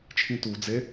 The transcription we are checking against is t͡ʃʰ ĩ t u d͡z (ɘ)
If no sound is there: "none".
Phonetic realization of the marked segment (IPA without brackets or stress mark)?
e